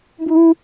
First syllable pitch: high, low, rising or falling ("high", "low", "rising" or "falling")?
high